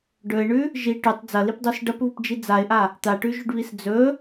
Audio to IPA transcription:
ɖ ɵ ɪ̯ ɳ ʉ | ʒ i ʈ ʉ tˤ d͡z ɐ l i p dˤ u s ɖ ɐ p β u p d͡ʒ i d͡z a ɪ̯ ʔ a | t̪ a ʈ ʉ ʒ ʉ ɖ β i s d͡z ɵ

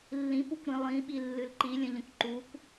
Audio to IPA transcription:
lː ĩ p u kʷ ɾ ĩ lˠ ĩ ɓ i lː ɨ l ǃ i lʲ ə̃ ʎ ə̃ kʷ ǃ u kʷ

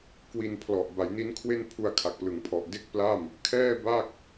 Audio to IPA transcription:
k w i˧ n pʰ l ɔ˨˩ ʔ b a˩˦ j n i˦˥ n kʰ w e˥˩ n pʰ u˧ a̯ kʰ a˨˩ k̚ p l ɯ˩˦ ŋ pʰ ɔ˨˩ ʔ d e˥˩ k̚ p l a˥˩ m | kʰ ɛː˥˩ b a˥˩ k̚

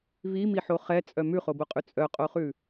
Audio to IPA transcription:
v i m i ħ o χ ɛ t͡sʼ œ m ʉ χ o b o qʼ ʉ t͡sʼ œ qʼ o χ ʉ

